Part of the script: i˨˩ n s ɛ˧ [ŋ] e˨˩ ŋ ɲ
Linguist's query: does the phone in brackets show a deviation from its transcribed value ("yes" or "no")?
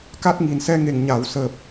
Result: no